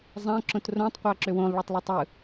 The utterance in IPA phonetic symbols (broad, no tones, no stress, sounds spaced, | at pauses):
zˤ æ̃ ǁ õ t r õ tˤ qʷ æ ǁ ø w õ lˠ ɭ o tˤ lˠ ø tˤ ɯ